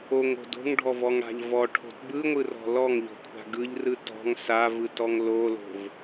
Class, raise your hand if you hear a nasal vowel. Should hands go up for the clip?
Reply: no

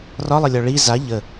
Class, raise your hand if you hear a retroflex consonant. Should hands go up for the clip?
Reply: yes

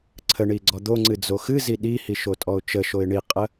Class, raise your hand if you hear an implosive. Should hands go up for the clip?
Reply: yes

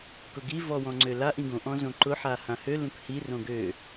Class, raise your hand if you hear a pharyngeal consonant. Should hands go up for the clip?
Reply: yes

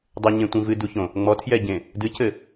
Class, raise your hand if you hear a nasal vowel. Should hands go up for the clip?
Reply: yes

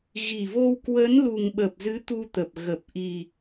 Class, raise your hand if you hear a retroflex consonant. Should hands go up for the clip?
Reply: no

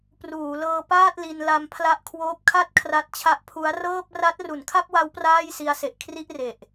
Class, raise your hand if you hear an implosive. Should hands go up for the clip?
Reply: no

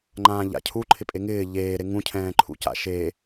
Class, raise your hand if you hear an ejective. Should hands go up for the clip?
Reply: yes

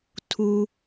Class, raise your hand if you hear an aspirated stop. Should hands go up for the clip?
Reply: yes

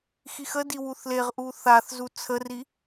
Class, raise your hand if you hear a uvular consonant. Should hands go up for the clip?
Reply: yes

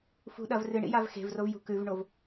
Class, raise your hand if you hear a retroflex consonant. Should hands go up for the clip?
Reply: yes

